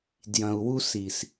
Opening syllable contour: low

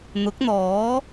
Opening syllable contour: rising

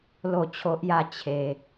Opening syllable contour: falling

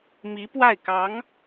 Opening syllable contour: rising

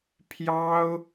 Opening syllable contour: high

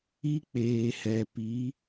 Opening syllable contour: high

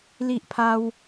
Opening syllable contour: high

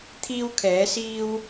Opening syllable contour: high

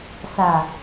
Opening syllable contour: low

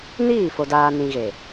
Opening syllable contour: falling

